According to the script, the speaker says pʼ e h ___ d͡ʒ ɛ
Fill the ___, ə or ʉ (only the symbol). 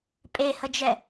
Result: ə